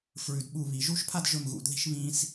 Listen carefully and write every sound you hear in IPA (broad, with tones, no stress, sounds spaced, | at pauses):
f ɹ ʉ˩˧ d ɓ u˧˩ β i˩˧ ʒ u˥˧ ʃ pʰ a˥˧ d ʒ ɵ˧˩ m ɣ ṵ˩˧ d ð i̤˧ ʃ β ĩ˧ s